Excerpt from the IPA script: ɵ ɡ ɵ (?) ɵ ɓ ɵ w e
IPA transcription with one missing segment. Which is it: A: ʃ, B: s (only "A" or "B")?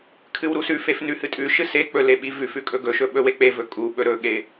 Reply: A